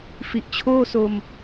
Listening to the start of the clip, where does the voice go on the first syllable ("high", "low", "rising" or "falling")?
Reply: low